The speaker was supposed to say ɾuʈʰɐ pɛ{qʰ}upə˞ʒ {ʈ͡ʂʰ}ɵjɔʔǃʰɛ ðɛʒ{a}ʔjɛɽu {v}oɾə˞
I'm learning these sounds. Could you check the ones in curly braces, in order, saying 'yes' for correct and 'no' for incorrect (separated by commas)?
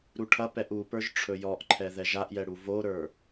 no, yes, yes, yes